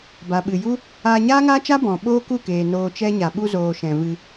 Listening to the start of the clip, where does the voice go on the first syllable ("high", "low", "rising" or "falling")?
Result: low